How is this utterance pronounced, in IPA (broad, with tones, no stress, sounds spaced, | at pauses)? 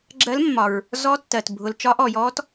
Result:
ɡ͡ǁ ɜ˧˥ l mː ɒ˩ ɹ | z ɔ˧˥ tː ɜ˩ t bʱ ʊ˩ l t͡ʃ ɒ˧˥ ʔ ɔ˩ j ɔ˧˥ t